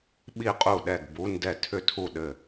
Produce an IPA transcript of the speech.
ɓ i˥˩ qʼ u˥˩ ɗ ɛ˥˩ ɡ b u˧˥˧ n d ɛ˥˩ tʰ ʏ˥˩ tʰ u˥˩ ɗ ɘ˥˩

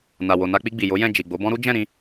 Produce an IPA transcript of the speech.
n a˨ w o˨ n a˧ k͡p i˧ ɡ͡b i˨ j o˨˦ j ɛ̃˦˨ d͡ʒ i˨ ɡ͡b o˨˦ b ɔ̃˦ ɾ u˦ d͡ʒ ɛ̃˦˨ ɾ ĩ˧

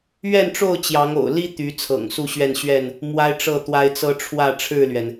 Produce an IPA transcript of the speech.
ɥ ɛ˥˨ n ʈ͡ʂ o˥˨ ʊ̯ t͡ɕ j ɑ˨˦ ŋ o̰˨˩ ʊ̯ l i˦ t̪ y˨˦ t͡sʰ ɤ̰˨˩ ŋ s u˥˨ ɕ ɥ ɛ˥˨ n ɕ ɥ ɛ˥˨ n | m w a˦ ɪ̯ ʈ͡ʂ ɤ˥˨ t̪ w a˦ ɪ̯ t͡s ɤ˦ ʈ͡ʂʰ w ä˥˨ ʈ͡ʂʰ ɻ̩˥˨ l ɥ ɛ˩ n

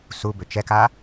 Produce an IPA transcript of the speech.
s u b ʏ t͡ʃ ɛ k a

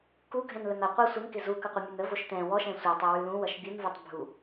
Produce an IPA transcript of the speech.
k u ɡʱ ɛ̃ n l ə n ʌ qʷ ʌ sʷ ɪ n k ɪ z u k ʌ qʷ ɪ mʲ ə n ə v o ʃ t ɛ̃ w ɔ ʃ ɛ̃ sʷ ʌ tˤ ɛ w ʉ l ũ w ʌ ʃ bʲ u n v u tˤ bʱ u

